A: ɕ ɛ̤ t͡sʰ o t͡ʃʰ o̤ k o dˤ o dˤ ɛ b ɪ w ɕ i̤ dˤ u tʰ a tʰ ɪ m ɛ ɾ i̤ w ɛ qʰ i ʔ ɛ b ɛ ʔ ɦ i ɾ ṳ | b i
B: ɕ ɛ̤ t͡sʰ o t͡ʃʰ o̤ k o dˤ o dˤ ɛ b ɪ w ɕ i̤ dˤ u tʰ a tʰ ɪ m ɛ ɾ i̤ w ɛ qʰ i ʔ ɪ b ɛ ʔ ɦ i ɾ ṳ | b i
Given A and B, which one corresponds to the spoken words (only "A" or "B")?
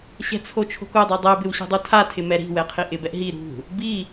B